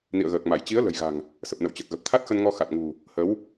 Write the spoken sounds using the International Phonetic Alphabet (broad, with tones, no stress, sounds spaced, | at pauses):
n ḭ˧˨ ə̯ ɣ əː˨˩ k̚ m a˧˩ j t͡ɕ i˨˦ ə̯ l ə̤˨˩ j ɣ a̤˨˩ ŋ | s ə˨˩ p̚ n ə̰˧˨ w t͡ɕ ə˨˩ t̚ ɣ ə˨˩ p̚ t̪ʰ a˦˥ t̚ x ə˧ n ŋ ɔ˧ x a˨˩ t̚ ŋ ṳ˨˩ | h ə˨˦ w